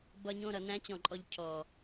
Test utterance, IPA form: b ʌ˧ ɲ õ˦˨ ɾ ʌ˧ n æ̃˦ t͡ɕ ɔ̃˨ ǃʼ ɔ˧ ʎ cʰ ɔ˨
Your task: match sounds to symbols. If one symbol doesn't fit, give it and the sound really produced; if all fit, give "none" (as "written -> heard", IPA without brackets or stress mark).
none